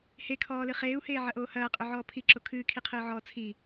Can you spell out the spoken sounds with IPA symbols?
h e kʰ ɔː l ɨ χ eː u̯ h eː ʕ ɐ ʔ oː h ɐː qʼ ø ʕ ɔː pʰ i ǁ o kʰ ɨː kʰ i qʰ ɨː ʕ ɔː t͡sʰ i

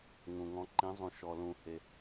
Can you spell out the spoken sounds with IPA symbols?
ŋ ũ˩ ŋ ɔ̃˩˥ ǃ ĩ˩˥ zˤ ũ˩ ʃ ɔ˩ l ũ˩ h e˩

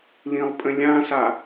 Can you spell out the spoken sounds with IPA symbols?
l ĩ lˠ pʼ ə̃ lʲ ã s a

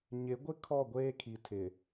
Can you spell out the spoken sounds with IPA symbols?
ɲ ɪ˨˦ ɡʷ ɪ˦ kʰ ɔ˦˨ ɡʷ eː˦ kʰ i˨ tʰ ɪ˨

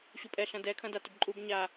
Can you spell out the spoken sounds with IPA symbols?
ɕ u pʼ ɛ ɬ ɐ̃ d ɛ kʰ ɐ̃ d a t ʏ b ǃʼ u b ɲ a

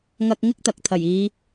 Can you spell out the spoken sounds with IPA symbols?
ŋ ɐ˧ k̚ ŋ ɪ˥ k̚ t̪ ɐ˨ k̚ t̪ʰ ɐ˨˩ j iː˨˧

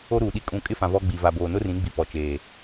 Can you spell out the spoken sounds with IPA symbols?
o˦ ɾ uː˨ ɗ i˦ kʼ ũ˦˨ kʼ ɪ˦ f ã˨ v ɔ˦ ɡ͡b i˨ v a˨ b oː˨ n ʊ˦ r ĩ˨˦ ɡ͡b i˨ p ɔ˨ t͡ʃ eː˨

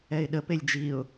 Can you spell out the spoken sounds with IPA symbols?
ɛ ɪ̯ ɗ ə p e lʲ d͡ʒ i ʊ̯

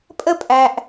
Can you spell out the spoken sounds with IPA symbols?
pʼ ə˥ pʼ æ˨ ʔ

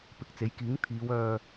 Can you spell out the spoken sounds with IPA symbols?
p ɪ˨˥ k̚ t͡s e˨˥ j k iː˨˥ ŋ t̪ʰ iː˨˧ w œː˧

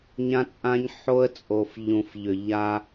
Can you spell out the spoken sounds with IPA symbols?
ɲ ã˦ t͡sʼ ã˦ ɲ ħ o˦ ə̯ t͡sʼ o˨ f ʎ ũ˨ f ʎ ʏ˨ ʎ a˦

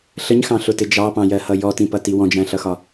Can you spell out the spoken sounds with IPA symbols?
ɬ ə ɲ x ɑ̃ ɬ ʊ t ɪ d͡ʒ ɑ p ɑ̃ j ɜ h ʌ j ɔ t ĩ p ʌ t i w ɔ̃ d͡ʒ æ̃ ɬ ʌ x ɒ

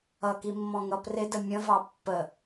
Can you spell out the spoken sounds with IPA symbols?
ʌ k i mː ɔ̃ ŋ ʌ p r ɪ d ə mʲ ə̃ v ɑ pː ə

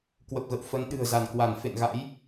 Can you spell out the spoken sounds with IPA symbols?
k w ə˨˩ p̚ ɣ ə̰˧˨ w f ə˨˦ n ɗ ɨ̤˨˩ ə̯ z a˧˩ n k w a˧˩ n f ḛ˧˨ n ɣ a̰˧˥ j

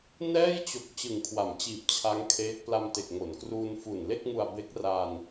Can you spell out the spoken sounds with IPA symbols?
n ɛː˥˩ j t͡ɕ o˨˩ k̚ t͡ɕ ɯ˨˩ ŋ kʰ w a˩˦ m t͡ɕ iː˨˩ p̚ t͡ɕʰ a˦˥ ŋ kʰ eː˦˥ k̚ p l a˧ m t e˨˩ k̚ ŋ o˩˦ n k r uː˧ n f u˨˩ n l e˥˩ k̚ ŋ u˧ a̯ b e˦˥ k̚ r a˧ n

